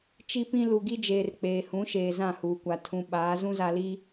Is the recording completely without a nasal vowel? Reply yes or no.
no